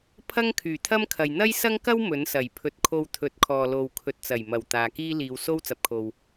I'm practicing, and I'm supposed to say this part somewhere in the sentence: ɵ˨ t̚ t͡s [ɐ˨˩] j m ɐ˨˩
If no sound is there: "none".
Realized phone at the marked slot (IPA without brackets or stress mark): ɐ˨˩